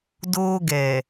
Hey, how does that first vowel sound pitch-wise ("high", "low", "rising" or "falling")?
high